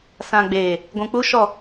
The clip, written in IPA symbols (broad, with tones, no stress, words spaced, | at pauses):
sã˨ɡ͡beː˨ | ɡʷũ˨k͡pu˦ ʃɔ˦˨